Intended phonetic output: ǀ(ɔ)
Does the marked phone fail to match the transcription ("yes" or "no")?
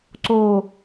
yes